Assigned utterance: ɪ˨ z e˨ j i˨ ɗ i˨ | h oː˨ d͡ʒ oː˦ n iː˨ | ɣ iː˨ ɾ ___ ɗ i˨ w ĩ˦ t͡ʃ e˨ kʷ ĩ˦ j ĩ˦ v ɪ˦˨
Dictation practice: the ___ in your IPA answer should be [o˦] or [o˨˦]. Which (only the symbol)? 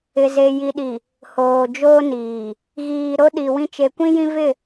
o˦